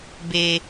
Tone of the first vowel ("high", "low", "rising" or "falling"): low